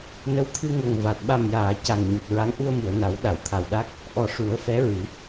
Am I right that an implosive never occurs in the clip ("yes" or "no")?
no